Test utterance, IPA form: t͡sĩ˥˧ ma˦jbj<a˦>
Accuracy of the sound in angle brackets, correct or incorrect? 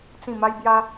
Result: correct